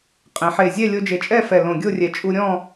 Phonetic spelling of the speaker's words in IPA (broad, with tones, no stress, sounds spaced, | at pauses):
qʼ ẽ˩˧ ħ e˨˩ zʲ ɛ˥˧ lʲ o˧ d͡ʒ e˨˩ t͡ʃʼ ɛ˥˧ f ɛ˨˩ l õ˨˩ ɡʲ o˥˧ rʲ ɛ˨˩ t͡ʃʼ u˧ ɾʲ ɔ̃˥˧